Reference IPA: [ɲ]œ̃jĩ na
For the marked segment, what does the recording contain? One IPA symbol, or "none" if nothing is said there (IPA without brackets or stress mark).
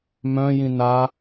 m